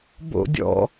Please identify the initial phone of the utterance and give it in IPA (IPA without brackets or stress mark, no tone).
b